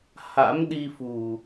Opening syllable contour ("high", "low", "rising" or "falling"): rising